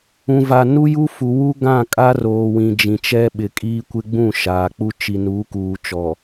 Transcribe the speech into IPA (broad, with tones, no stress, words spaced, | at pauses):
ũ˨va˨ nu˦ju˦fu˨ wu˦ ɡã˦˨kʼa˦ roː˨wĩ˨ d͡ʒĩ˨t͡ʃɛ˦ ɓɪ˨kʼiː˦kʷɪ˦ ɡ͡bũ˦˨ʃaː˨k͡pu˦ t͡ʃi˨nuː˨˦kuː˨ t͡ʃɔ˨